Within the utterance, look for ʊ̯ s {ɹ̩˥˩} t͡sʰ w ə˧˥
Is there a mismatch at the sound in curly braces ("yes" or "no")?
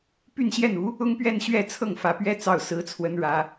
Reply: yes